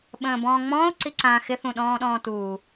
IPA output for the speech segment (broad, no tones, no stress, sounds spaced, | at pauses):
ɓ ə̃ː b ɔ̃ː ŋ͡m ɔ̃ː ʊ̯ ǀ i ǀ ã x ɪ θ ũ ɗ ɔ̃ː ɗ ɔ̃ː t uː